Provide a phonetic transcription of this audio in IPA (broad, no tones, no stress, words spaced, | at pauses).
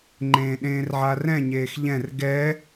ŋ͡ǃẽːɗẽːrʕarɛ̃ ɲeːxʎɛ̃r ɡɛ